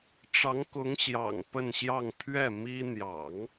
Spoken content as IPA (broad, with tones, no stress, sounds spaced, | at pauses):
ʈ͡ʂ ɑ˧˥ ŋ k ʊ˧˥ ŋ ɕ j ɑ̰˨˩ ŋ p ə˥˧ n ɕ j ɑ˥˧ ŋ pʰ ɥ ɛ˥˩ m i˥ n̪ j ɑ̰˨˩˦ ŋ